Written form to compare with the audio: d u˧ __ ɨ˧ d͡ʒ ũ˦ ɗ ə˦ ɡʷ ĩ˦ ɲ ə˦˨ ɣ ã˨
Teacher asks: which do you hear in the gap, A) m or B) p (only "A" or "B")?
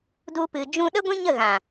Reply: B